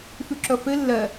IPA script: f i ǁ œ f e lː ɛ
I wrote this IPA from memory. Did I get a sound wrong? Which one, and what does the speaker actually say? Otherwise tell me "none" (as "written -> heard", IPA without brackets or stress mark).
i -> y